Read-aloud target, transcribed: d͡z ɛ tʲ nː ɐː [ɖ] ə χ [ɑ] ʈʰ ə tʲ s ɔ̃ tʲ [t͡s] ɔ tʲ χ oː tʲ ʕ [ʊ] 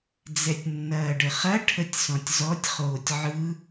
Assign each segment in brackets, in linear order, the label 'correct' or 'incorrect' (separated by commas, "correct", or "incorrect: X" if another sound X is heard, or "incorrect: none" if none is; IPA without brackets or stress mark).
correct, incorrect: ɐ, incorrect: z, incorrect: ɯ